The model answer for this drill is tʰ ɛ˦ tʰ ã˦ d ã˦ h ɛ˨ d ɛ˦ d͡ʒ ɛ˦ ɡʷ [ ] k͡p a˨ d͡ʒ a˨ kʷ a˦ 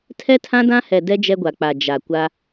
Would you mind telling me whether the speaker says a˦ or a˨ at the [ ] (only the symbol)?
a˨